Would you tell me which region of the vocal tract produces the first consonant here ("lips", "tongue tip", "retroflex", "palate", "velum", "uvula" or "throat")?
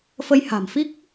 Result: lips